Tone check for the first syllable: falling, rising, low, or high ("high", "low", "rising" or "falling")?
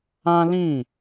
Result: high